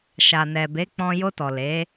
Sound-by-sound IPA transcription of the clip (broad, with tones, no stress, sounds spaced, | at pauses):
ʃ a˨ n ɛ˨ b e˨˦ k͡p ɔ̃˧ j o˧ t ɔ˨ l e˨˦